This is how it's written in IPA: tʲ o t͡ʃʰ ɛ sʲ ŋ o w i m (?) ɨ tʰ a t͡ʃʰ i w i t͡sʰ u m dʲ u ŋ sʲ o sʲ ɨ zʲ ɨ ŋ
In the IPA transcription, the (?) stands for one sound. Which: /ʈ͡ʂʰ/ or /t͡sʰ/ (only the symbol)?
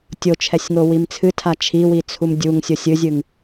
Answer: t͡sʰ